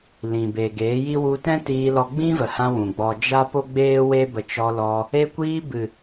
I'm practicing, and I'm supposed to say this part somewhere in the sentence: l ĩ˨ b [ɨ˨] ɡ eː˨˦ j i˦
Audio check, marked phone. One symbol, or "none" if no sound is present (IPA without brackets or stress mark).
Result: e˨